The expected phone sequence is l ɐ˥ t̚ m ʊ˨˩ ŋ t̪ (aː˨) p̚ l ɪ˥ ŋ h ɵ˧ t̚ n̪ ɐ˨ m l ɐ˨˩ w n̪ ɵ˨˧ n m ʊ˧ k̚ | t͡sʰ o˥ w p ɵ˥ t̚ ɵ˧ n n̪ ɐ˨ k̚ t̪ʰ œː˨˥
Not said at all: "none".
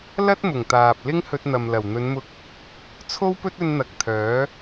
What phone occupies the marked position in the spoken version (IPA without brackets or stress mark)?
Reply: aː˨